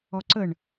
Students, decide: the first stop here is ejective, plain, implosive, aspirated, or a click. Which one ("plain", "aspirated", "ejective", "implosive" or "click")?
click